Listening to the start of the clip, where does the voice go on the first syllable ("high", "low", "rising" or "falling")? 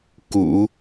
low